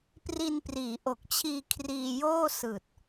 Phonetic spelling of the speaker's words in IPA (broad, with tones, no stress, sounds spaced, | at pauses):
p r i˧ n p r iː˩˦ ʔ o˨˩ k̚ t͡ɕʰ iː˧ kʰ r iː˧ j oː˥˩ s ɯː˨˩ t̚